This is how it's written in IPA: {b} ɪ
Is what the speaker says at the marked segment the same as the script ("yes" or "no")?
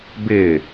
yes